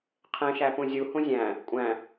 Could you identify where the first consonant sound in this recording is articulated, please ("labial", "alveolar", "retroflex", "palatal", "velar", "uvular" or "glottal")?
uvular